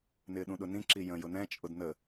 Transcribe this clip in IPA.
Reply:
n ɪː ɗ ũ ɗ ʊ n ĩ ǁ i j ə̃ j ʊ n ɛ̃ t͡ʃʼ ʊ d n ə

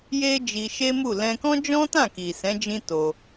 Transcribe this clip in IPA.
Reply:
j e˦ d͡ʒ i˧ ʃ e˦ m u˦˨ l ɛ̃˧ k ɔ̃˦ d͡ʒ ɔ̃˦ t ã˦˨ k i˨ s ɛ̃˨˦ d͡ʒ ĩ˦ t o˧

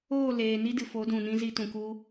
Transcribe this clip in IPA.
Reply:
oː˦˨ l eː˨ n i˦ d ɨ˨ f o˨˦ d ũ˨ n ĩ˧ z i˧ t ũ˨ k u˧

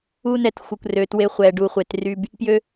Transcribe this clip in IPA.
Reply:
u˧ n ɛ˨ t xʷ ə˨ kʷ r ø˨ t w e˧ χʷ ɛ˨ ɖ u˨ χʷ e˨ t r y˧ b | p j ø˦

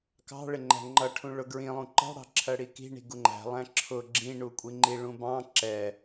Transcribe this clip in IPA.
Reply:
k ɑ̤ ɭ ɪ ŋ͡ǃ æ̤ ŋ͡ǃ ʌ ʈʰ ũ ɭ ʊ ɡ ɹ ĩ lˠ ũ ǃ ɑ̤ ɽ ɑ̤ ǁʰ ɜ ɽ i k i̤ ɳ i̤ ɡ u ŋ͡ǃ æ̤ lˠ æ̃ ǁʰ ʊ ɡ͡ǁ ĩ ɳ u kʷʼ i ŋ͡ǃ i ɭ ũ b ɑ̃ ǁ ɛ

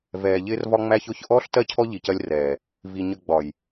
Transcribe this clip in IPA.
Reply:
v ɛː˨ ʎ ɪː˦ r v ɒ˦ ŋ͡m æ˦ ç ʊː˦ ç ʔ ɔː˦ ɬ t ɜ˦ cʰ ɔ˦ ʎ i˨ c ɜ˦ lʲ r ɛː˨ | v i˨ ɲ ə˨ ɡ͡b ɒ˨ j

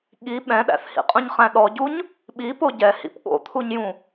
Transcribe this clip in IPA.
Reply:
ɠ i ɓ ɛ̃ ɗ æ̰ θ h ḭ qʼ ũ ɲ χ æ̃ ɗ ɔ ɟ u ɲ | ɓ i p o ɟ ɛ h ḭ p ɠ o̰ t̪ʰ u ɲ j ũ

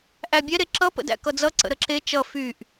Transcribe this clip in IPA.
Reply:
ʔ æ bʲ ɛ ɾ e ǁ ʌ p ə̰ d æ̰ k ʌ d͡z ʌ ǀ ə̰ ɾ ə ǁ e t͡ʃ ʌ f y ʔ

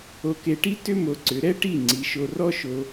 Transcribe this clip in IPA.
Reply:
o˧ k e˧ ʈ i˥ t ʏ˥ m o˧ ǀ ʏ˩˥ ɾ ɛ˥ ʈ i˥˩ ŋ͡ǀ i˩˥ ʃ o˧ r ɔ˥ ʃ o˧

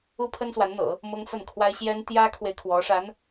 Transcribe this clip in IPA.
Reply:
u˥ pʰ ə˥ n s w a˧˥ n n̪ ɤ̰˨˩˦ | m ʊ˥ ŋ f ə˥˩ n kʰ w a˥ ɪ̯ ɕ j ɛ˥ n t̪ j ä˥ kʰ w e˨ ɪ̯ kʰ w ɔ˧˥ ʂ a˧˥ n

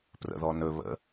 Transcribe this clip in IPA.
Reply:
p r ə̰ ð ɔ n ɵ β ə̰

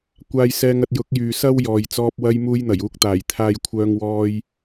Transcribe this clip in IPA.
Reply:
kʷ aː˧ j s ɛː˧ ŋ ɐ˧ t̚ j ʊ˨˥ k̚ j yː˨ s ɐ˥ w j ɔː˨ j t͡s ɔː˧ p̚ w ɐ˧ j m uː˧ j n̪ ɐ˨˩ j uː˨˥ k̚ t̪ aː˨˩ j t̪ʰ aː˧ j kʷʰ œː˧ ŋ w ɔː˧ j

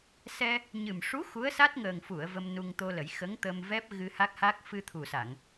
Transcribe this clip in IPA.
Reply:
s ɛ˧ | ɲ ɨ˨˩ m ʂ u˧˥ x u˧˥ ə̯ s a˦˥ t̚ ŋ əː˨˩ ŋ f u˨˩˨ ə̯ v ə˧ m n u˧ ŋ t̪ o˧ l ə˨˩˦ j x ə˧˥ ŋ t̪ ə˧ m v ɛ˦˥ p̚ ɣ ɨ˧ h a˦˥ k̚ h a˦˥ k̚ f ɨ˧ t̪ʰ u˨˩ s a˨˩˨ ŋ

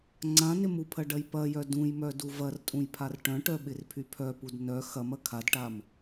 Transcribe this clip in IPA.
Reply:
ŋ͡ǀ ã n ɪ m u pʰ ɐ ɖ ɐ j p ɐ j œ d ũ j m œ d u v ɐ r tʼ ũ j pʰ a r ʈ œ̃ ʈ œ ɓ ɪ r pʰ y pʰ œ p u d n œ x ɐ m ɐ kʰ a d ʈ a m

